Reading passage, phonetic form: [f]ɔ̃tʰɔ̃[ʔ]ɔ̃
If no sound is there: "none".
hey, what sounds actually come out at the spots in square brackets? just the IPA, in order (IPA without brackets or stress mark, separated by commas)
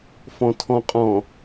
f, qʼ